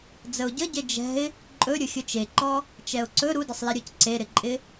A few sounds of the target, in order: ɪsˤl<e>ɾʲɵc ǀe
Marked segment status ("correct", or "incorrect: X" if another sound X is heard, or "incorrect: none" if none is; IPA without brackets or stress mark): correct